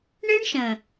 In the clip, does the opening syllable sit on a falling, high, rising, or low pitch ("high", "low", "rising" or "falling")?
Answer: high